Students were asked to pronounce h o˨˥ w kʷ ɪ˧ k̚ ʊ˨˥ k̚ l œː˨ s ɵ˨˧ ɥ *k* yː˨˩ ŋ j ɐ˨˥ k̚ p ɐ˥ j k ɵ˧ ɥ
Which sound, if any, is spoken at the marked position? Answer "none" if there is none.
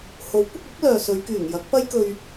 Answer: k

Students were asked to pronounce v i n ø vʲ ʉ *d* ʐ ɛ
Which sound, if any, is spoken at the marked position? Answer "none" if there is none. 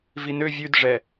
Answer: d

